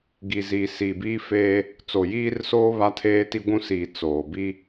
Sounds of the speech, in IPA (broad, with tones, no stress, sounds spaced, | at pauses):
ɡ i˨ z iː˨ s iː˨ b iː˦ f eː˦ | t͡s o˨ j iː˦ r s oː˦ β a˦ tʰ eː˦ t i˦ ɡʷ ũ˦ s iː˨ t͡s oː˨ b i˦